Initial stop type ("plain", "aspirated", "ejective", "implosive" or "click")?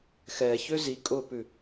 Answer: ejective